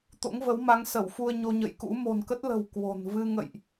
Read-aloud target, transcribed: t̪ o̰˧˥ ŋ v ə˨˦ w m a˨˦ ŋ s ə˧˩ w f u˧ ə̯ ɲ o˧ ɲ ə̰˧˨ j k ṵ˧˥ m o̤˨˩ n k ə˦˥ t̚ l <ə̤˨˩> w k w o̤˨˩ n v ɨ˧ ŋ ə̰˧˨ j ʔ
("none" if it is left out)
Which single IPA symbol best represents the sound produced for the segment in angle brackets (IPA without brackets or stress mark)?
ə̤˨˩